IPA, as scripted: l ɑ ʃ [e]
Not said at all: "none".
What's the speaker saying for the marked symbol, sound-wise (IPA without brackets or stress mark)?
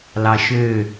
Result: ø